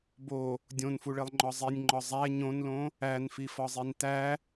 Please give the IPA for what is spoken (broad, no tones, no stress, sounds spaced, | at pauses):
b o | dʲ õ n f u ɭ e lˠ ŋ͡ǃ ɒ zˤ i nʲ ŋ͡ǃ ɒ zˤ æ ɲ õ n l õ | æ n f i f ɒ zˤ i n t æ